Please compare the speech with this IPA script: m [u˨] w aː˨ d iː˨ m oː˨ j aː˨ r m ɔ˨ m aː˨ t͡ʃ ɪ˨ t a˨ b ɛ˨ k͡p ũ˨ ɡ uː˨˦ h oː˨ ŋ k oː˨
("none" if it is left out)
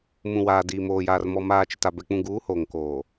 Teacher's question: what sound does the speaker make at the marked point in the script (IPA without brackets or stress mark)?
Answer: ũ˨